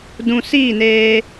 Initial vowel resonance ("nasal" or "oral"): nasal